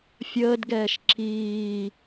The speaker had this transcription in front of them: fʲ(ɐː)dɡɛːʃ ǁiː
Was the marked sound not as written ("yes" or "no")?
yes